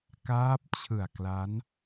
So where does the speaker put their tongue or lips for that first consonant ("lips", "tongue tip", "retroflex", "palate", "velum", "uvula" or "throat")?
velum